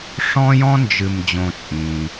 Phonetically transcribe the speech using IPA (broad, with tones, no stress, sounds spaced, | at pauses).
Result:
ʂ ɔ̃˥ j ɔ̃˥ n d͡ʒ ɨ˨ m d͡ʑ õ˨ t͡sʼ ĩː˩